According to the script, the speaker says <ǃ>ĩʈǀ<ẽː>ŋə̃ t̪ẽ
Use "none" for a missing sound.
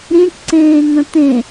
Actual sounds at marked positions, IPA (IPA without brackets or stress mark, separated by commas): ɾ, ẽː